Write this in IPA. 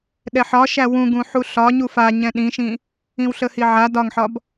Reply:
ɗ ɛ ħ ɒ ʃ æ w ũ ɡ ũ ħ u ɬ ɒ ɲ u f a ɲ ɛ̃ ɗ ĩ ʃ ĩ | ĩ w ɬ ə h i ʕ a d ɒ ŋ ħ ɒ b

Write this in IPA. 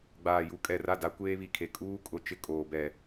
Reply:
ɡ͡b aː˨ j u˨˦ kʼ ɛ˨ r a˦˨ d a˦ kʷ eː˦ β i˨ kʰ e˨ kʼ uː˦ kʼ ʊ˨ t͡ʃ ɪ˦˨ kʼ oː˨ b ɛ˨

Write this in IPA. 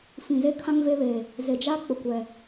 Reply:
f ĩ˨ z e˦ kʰ ã˦ ŋ v e˦ β e˨ | z e˨ d͡ʒ a˦ k͡p ʊ˨ kʷ ɛ˨

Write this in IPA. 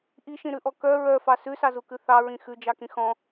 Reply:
ʔ i ʃ ĩ ɾ ʉ ʔ ɔ k œ ɹ œ f ɑ s ʉ s ɑ z u k ʉ θ ɑ ɹ ĩ x ʉ d͡ʒ ɑ k ĩ x ɔ̃

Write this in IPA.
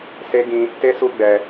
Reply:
s e˦ ɡ ĩ˦ | t e˦ s u˧ ɡ͡b ɛ˧

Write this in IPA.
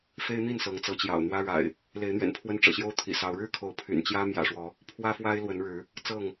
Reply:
f e˦ ɪ̯ n̪ i˥˨ n s ɤ˨˦ ŋ t͡s ɤ˨˦ t͡ɕ j ɑ̰˨˩ ʊ̯ n̪ w ä˦ ɻ a̰˨˩ ɪ̯ | l e˨˦ ɪ̯ n̪ ɥ ɛ̰˨˩ n pʰ w ə˦ n ʈ͡ʂ ɤ̰˨˩ ɕ j o˦ ʊ̯ t̪ʰ ḭ˨˩ s ɑ˨˦ ʊ̯ ɻ ɻ̩˥˨ kʰ o˨˦ ʊ̯ pʰ y̰˨˩ n t͡ɕ j ä˦ m j ä̰˨˩ ʂ w ɔ˨˦ | pʰ w ä˦ f w a˦ ɪ̯ l w ə˨˦ n ɻ ɻ̩˨˦ | t͡s ɤ˥˨ ŋ

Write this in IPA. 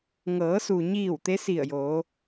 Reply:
ŋ ɤː˩˧ s u˩ ɲ iː˧˩ w t̪ e˧˥ s i˧˩ ə̯ j o˩˧

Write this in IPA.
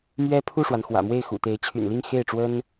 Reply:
m ɥ ɛ˥ pʰ u˥˩ ʂ w a˩ n x w ä̰˨˩ m w e˥˩ ɪ̯ x ṵ˨˩ t̪ e˧˥ ɪ̯ t͡ɕʰ y̰˨˩ n l i˥˧ ŋ x e˥˩ ɪ̯ ʈ͡ʂ w ə˥ n

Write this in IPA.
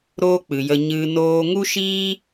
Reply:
ɾ oː˦ k͡p ɨ˨ j ə˧ ɲ ɨ˧ n oː˦ ŋ u˦ ʃ iː˦

